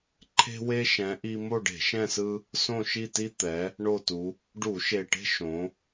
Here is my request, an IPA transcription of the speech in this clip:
ǃʰ e̤˦ w e˦ ʃ ɛ̃˨˦ ʔ i˦ m o˦˨ ɖ e̤˧˩˧ ʃ ɛ̃˦˨ s ɯ˦ | s õ˦˨ ʃ i˦˨ t i˦ t̪ ɛ˨˦ | ɳ o˦˨ t u˨˦ | ɖ u˧˩˧ ʃ e˨˩ ʈ e̤˦ ʃ õ˨˦

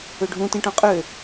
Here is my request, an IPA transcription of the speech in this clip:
ø ɖʱ ũ t ĩ ʈ ɔ̃ qʼ ø

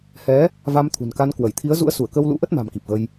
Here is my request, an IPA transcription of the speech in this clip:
h ɛ˨˦ | v a˧ m t̪ʰ ṳ˨˩ n k a˧ n k w ə˧˩ j t̪ʰ i˨˦ ə̯ z ṵ˧˥ ə̯ s u˧˩ ə̯ k ə˧ w l ṵ˧˥ ʔ ə˦˥ t̚ m a̤˨˩ m k i˨˩ p̚ ɣ ə˧ j

